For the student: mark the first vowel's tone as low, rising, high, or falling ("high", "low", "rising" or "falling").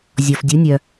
low